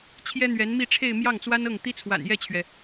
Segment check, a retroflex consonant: present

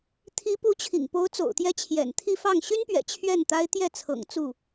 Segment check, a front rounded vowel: present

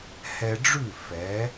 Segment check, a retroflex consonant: present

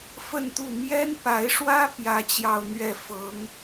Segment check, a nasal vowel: absent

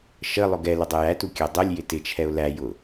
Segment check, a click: absent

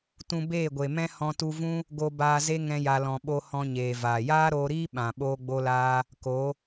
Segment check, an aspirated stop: absent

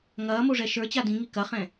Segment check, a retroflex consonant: present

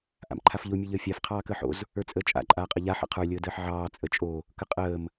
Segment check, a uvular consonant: present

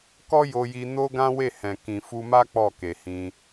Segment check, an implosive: absent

